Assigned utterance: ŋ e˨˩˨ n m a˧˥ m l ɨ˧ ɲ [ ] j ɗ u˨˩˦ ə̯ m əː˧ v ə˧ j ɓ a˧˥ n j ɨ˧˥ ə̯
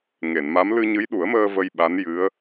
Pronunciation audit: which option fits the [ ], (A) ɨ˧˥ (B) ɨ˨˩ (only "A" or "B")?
A